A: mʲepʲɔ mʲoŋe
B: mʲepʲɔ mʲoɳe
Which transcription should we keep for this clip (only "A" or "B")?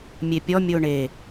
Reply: B